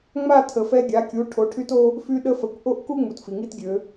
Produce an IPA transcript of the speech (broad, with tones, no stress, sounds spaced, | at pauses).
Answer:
ŋ͡m a˥˧ tʰ ə˨˩˦ f ɛ˥ ɡʲ a˩˥ kʲ u˩˥ ʈʰ o˩˥ ʈʰ y˥ t o˥ | f y˥ ɗ ə˥ f ə˨˩˦ kʷ ʔ o˥˧ ʔ k u˥ ŋ͡m u˩ t f i˩ ŋ i˥˧ t ɡʲ ø˨˩˦